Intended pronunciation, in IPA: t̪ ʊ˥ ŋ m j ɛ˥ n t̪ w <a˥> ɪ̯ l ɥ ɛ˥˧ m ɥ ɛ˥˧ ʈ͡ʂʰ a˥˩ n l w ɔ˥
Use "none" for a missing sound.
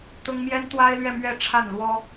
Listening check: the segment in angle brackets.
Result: a˥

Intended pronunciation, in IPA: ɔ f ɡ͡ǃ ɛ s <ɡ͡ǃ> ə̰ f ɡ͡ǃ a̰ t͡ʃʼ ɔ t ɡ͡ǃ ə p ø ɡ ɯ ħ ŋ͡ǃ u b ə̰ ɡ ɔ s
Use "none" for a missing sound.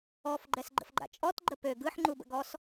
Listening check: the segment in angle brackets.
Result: ɡ͡ǃ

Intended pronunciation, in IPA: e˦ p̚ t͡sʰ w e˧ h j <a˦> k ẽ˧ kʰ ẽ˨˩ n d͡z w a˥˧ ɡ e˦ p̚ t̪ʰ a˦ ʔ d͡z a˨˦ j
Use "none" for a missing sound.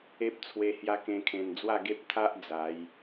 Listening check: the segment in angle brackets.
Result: a˦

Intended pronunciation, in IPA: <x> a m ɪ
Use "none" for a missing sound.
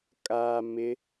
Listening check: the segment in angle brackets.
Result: kʼ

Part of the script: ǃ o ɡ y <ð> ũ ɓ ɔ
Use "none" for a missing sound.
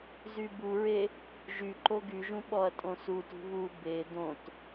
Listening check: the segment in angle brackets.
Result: ʒ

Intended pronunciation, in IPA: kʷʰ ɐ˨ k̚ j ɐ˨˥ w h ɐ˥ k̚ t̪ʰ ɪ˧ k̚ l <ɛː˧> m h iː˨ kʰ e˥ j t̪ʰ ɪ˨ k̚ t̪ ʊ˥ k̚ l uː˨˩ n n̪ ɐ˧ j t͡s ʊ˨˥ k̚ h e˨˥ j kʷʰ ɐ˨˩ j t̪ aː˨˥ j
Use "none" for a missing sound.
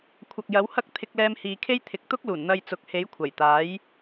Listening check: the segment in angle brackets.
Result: ɛː˧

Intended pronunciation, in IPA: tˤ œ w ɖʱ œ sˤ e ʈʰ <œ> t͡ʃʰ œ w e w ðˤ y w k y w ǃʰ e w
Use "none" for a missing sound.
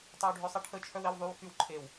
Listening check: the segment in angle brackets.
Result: ə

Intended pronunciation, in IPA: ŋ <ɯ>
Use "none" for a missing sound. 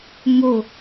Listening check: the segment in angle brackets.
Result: ʊ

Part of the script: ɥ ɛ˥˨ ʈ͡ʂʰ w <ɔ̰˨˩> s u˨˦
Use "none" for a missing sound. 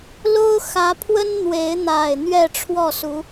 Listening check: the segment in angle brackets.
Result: ɔ˥˨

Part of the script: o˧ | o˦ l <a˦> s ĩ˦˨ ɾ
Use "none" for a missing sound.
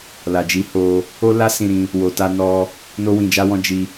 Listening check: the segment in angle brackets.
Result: a˦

